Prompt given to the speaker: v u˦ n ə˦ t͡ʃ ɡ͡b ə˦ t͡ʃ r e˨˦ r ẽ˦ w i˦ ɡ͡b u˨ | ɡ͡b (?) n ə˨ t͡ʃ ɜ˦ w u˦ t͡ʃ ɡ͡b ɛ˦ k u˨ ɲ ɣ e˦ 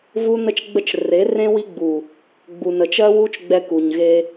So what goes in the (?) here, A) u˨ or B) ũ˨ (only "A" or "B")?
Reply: A